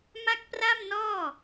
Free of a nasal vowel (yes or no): yes